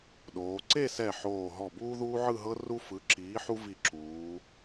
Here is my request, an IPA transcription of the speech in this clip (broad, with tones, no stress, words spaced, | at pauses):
ɗoː˩˧ ǀe˥˧sɛ˧˩ ħoː˧˩ ɦɔ˧˩buː˥ ðuː˥ʕɯ˥˧ɦɤ˥ ru˧fɯ˩˧ǁiː˩˧ ħu˥vi˧˩ǁuː˩˧